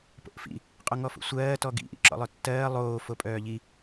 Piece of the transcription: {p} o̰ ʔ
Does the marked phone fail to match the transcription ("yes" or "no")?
no